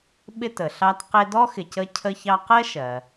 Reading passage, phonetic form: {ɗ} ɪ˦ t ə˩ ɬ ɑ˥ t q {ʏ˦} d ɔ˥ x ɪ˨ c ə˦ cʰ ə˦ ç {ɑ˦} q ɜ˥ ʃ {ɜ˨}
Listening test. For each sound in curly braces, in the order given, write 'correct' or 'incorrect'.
incorrect, incorrect, correct, incorrect

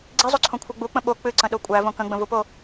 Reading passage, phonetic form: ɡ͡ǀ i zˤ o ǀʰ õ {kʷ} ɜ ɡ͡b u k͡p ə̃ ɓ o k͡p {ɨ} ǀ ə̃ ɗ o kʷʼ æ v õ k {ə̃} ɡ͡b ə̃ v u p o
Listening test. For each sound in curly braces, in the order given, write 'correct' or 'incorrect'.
incorrect, correct, correct

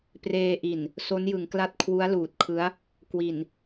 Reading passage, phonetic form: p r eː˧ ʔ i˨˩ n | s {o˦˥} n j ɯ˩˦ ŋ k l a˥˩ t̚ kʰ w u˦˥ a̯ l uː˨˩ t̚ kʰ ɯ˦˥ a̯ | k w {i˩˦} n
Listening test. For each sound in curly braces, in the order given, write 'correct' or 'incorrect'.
correct, incorrect

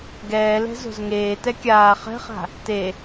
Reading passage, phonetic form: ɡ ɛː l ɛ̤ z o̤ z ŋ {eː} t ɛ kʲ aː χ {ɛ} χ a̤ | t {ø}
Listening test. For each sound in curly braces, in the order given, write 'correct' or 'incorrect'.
correct, incorrect, incorrect

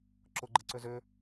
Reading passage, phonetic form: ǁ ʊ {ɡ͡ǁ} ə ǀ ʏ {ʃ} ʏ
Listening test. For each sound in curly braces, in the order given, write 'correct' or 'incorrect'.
incorrect, incorrect

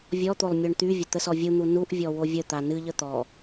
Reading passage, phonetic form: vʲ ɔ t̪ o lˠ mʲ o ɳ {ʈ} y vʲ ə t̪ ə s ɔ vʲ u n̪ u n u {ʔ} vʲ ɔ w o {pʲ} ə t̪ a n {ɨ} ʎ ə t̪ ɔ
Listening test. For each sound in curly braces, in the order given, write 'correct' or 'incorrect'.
incorrect, correct, incorrect, correct

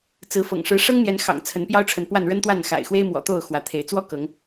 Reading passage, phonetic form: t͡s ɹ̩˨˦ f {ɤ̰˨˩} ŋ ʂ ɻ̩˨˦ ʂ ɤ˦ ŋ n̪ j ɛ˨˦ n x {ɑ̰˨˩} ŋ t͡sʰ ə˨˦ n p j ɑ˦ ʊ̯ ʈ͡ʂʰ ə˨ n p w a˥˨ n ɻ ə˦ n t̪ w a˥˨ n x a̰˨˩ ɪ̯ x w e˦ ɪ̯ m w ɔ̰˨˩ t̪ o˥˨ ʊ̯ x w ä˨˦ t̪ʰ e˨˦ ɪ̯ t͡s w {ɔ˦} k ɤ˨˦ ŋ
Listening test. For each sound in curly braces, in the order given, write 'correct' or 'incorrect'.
correct, correct, correct

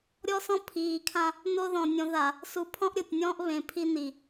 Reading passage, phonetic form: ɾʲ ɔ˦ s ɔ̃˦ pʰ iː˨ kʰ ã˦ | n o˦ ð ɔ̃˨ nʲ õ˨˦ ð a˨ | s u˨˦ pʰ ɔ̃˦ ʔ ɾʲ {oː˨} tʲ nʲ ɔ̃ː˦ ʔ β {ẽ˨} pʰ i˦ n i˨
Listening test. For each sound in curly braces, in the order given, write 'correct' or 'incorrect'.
incorrect, correct

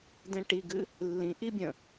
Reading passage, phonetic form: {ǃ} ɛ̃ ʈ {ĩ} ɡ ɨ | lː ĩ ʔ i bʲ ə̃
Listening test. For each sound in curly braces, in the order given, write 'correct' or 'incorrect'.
incorrect, incorrect

